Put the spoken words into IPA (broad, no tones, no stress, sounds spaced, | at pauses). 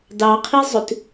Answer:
d ɑ qʰ i zˤ ʉ t